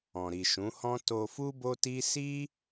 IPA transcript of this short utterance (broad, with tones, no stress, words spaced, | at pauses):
ɔ̃˨ɾi˨ʃũ˨˦hɔ̃˦ to˧fu˦ bo˦ti˦ si˦